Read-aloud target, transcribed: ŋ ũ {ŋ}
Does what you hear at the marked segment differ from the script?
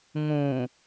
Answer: yes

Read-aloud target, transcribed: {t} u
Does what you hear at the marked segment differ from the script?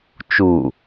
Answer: yes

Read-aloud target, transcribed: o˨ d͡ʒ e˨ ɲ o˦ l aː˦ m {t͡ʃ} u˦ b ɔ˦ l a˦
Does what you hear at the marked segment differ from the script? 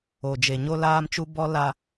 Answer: no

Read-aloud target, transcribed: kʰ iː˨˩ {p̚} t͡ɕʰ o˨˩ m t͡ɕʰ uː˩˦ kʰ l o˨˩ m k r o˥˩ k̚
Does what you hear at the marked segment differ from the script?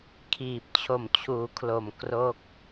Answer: no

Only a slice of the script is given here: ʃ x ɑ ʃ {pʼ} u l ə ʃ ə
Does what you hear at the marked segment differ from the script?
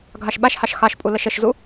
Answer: no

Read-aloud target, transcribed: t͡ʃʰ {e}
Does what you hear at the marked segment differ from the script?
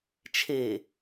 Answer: no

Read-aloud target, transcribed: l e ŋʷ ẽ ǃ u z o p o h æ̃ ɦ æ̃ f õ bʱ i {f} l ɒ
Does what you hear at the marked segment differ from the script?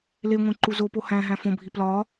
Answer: yes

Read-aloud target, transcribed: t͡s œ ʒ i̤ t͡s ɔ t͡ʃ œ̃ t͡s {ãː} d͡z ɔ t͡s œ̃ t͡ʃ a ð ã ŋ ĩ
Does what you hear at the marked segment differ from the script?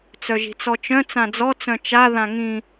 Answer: yes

